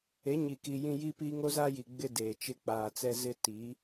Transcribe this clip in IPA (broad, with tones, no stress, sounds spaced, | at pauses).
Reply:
e˨˦ ɲ i˨ k i˨ j ĩ˨ j i˦ p i˦ ŋ o˦ z a˦ j i˨ ɡ͡b ɪ˦ d eː˨ t͡ʃ ɪ˦ k͡p aː˨ t͡s ɛ˦ z ɪ˦ t i˨˦